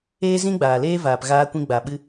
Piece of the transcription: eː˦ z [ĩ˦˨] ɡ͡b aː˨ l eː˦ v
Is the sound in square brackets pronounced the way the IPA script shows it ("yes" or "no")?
no